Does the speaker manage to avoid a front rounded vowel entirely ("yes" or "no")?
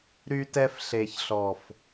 no